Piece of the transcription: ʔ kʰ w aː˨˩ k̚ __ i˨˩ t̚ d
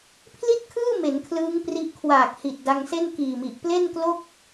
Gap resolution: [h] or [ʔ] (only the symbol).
h